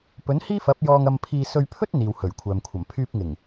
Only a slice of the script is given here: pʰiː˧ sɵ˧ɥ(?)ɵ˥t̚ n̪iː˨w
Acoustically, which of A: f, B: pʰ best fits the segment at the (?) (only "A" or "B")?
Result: B